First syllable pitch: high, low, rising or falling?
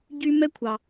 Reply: high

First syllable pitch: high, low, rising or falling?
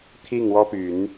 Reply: falling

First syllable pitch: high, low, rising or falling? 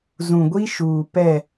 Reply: low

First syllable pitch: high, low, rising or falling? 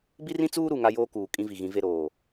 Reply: high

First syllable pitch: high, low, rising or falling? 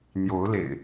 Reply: rising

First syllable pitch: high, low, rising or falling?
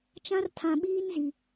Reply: high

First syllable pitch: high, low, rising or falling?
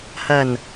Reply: low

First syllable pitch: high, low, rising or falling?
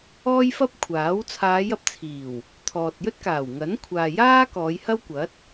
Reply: high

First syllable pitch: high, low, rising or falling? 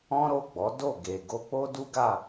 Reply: high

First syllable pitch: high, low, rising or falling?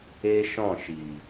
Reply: high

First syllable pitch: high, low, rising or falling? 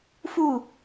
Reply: falling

